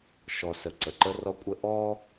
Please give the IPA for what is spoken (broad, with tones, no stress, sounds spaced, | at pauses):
ʃ ɔ˨ s ə˨ ǀ ə˨ ǃ ə˦ r ɔ˦ kʷʼ ə˦ ʔ ɔ˦